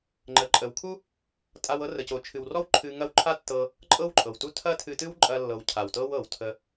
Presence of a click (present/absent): present